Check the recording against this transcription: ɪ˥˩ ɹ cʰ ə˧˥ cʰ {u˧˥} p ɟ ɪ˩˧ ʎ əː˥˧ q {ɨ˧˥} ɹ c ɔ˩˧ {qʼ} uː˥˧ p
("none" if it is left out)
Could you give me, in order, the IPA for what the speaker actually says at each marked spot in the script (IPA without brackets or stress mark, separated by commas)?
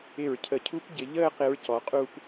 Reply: u˧˥, ɪ˧˥, qʼ